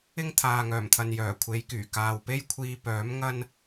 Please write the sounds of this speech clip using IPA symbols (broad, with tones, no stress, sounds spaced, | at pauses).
ɪ˥ ŋ t̪ʰ aː˨ ŋ œː˨˩ m t̪ʰ ɐ˨ n j œː˨˩ kʷʰ e˨˧ j k yː˨˩ k aː˨ w p e˥ j kʷʰ iː˧ p œː˨˥ m ŋ ɐ˥ n